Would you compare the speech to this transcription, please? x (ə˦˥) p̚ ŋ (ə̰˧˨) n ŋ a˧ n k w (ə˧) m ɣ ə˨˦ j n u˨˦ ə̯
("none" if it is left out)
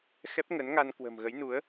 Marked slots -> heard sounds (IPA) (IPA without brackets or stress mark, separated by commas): ɛ˦˥, ə˨˦, ə̤˨˩